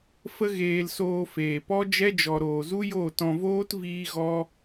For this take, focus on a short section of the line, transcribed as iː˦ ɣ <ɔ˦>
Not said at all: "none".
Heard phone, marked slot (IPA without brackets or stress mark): ɔ˦